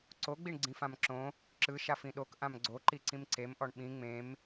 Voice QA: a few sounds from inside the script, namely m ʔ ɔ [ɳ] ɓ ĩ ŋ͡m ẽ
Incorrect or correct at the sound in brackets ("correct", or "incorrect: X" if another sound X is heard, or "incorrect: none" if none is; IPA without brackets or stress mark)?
correct